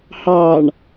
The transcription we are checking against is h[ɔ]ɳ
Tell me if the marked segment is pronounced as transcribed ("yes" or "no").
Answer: no